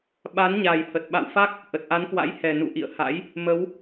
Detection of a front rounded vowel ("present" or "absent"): absent